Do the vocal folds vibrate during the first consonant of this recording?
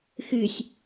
no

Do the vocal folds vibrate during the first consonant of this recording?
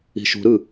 no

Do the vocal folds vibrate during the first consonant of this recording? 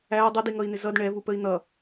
yes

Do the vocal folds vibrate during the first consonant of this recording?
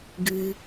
yes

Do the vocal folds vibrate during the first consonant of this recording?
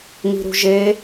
yes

